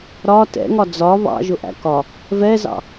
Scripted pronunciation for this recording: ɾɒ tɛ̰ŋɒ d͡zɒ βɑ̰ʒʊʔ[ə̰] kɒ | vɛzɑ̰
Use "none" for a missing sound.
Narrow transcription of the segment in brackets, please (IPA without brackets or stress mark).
æ̰